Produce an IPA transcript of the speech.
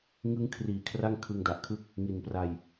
ŋ ɯ˦˥ ŋ kʰ r iː˨˩ kʰ r a˥˩ ŋ kʰ ɯ˧ ŋ d a˨˩ ʔ kʰ ɯ˥˩ k̚ | ŋ i˨˩ n p r a˧ j

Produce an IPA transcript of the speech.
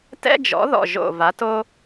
t ɛ̰˥ d͡ʒ ɔ̰˩˥ ð ɔ̰˧˩ ʒ o̰˧˩ v a˩˥ t o˥

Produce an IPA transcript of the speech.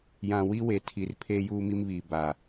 j ã˨ w i˦ w e˨ tʰ i˨ r pʰ eː˦ j uː˦ m i˦ m β iː˨ b a˨

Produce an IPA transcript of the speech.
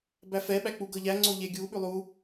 b æ f ɛ ɓ æ k͡p u ɡ ɤ ʎ æ ŋ͡ǀ o ʎ e ɡʲ u ɓ ʉ lˠ u

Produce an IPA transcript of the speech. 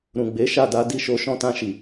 ɾ ũ˨ ɡ͡b e˨˦ ʃ a˦˨ d a˨˦ d i˦˨ ʃ o˧ ʃ ɔ̃˧ t ã˧ ʃ i˨

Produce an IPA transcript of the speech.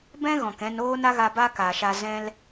b ɛ̃˦ ɣ ɔ̃˨ k ɛ̃˧ n oː˦ n a˦ ɣ a˧ b aː˦ k aː˨ ʃ aː˧ z ɛ̃˦ l

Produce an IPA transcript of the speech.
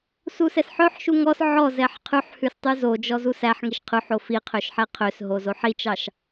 s u s ɛ s ħ œ ħ ʃ u ŋ ɔ s ʕ ɔ z ɛ ħ qʰ ʉ ħ h ʉ s tˤ y z o d͡ʒ ɔ z u s æ ħ ŋ i ʃ qʰ ʉ ħ o f i qʰ ø ʃ ħ ɛ qʰ ø s ɦ o z o ħ i t͡ʃ ɑ ʃ

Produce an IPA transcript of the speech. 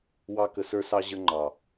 w ɑ˧ k ə˨ s ə˞˧ s ɑ˧ ʑ ə˧ ŋ͡ǃ ɑ˨

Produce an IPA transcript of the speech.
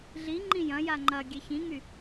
ɮ i ŋ͡ǃ ĩ j ɐ̃ j a ŋ͡ǃ ɐ ɡʲ ɛ ç ĩ ŋ y

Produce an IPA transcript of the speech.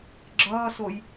ɡ͡ǁ ʌː s o j

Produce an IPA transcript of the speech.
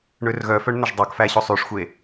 ɳ ø r ɣ œ f œ ɳ n̪ œ ʒ dˤ ɑ k f æ ɕ o sˤ y ʂ xʷ e

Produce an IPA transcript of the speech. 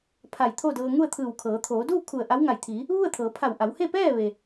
pʰ a˧˩ j t̪ʰ o˥˨ d ɤː˧ ŋ u˥˨ ə̯ t̪ʰ ɯː˧˩ w kʰ ɤː˩˧ t̪ʰ oː˩˧ d uː˥˨ kʰ u˧˩ ə̯ ʔ a˧˥ w ŋ a˧˩ j t̪ʰ iː˩˧ | ʋ u˥˨ ə̯ t̪ʰ ɤː˩˧ pʰ a˧˩ w ʔ a˩˧ w h e˥˨ p ɛː˥˨ ʋ e˩

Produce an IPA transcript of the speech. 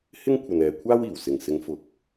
h ɪ˥ ŋ kʷʰ ɐ˨ n ɛː˨ kʷʰ aː˥ w iː˨˩ w s ɪ˨˩ ŋ s ɪ˨˧ ŋ f ʊ˨ k̚

